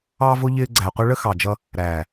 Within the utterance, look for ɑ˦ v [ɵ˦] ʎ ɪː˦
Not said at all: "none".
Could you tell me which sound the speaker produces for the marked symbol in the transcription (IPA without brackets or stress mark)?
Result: ʊ˦